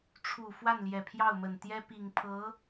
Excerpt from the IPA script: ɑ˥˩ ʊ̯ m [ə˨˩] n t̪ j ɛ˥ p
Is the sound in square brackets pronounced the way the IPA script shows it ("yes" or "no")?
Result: yes